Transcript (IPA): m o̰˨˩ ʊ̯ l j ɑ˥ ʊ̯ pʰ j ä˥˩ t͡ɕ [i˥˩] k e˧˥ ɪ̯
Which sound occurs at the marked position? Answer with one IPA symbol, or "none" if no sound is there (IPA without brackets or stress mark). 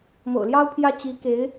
i˧˥